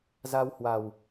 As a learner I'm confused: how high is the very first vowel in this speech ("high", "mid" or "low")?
low